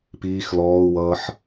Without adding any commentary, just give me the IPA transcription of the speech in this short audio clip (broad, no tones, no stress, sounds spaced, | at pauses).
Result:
p iː x l ɔː u̯ w ʌː ħ